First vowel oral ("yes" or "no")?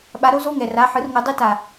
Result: yes